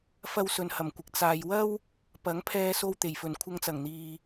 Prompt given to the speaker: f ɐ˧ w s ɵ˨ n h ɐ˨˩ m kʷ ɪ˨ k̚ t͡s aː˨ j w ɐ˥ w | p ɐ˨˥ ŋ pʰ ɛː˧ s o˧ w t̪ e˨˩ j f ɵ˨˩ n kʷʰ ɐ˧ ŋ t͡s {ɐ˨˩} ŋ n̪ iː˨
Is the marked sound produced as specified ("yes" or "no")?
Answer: yes